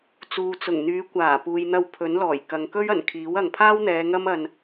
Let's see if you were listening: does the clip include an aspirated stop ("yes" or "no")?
yes